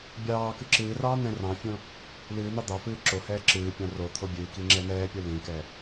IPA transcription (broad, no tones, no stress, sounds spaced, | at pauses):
bʲ ɑː k ɨ ǁ ɨː r ɑː n̪ ɛ̃ r ɑ̃ fʲ õ | l ɨː n̪ ɑ d̪ ɑ f ɨː ǁ o h ɛː ǁ ɨː pʲ ɑ̃ r o t̪ʰ o bʲ ɨː k i ŋ͡ǁ ɛ n̪ ɛː pʲ o l ĩ k ɛ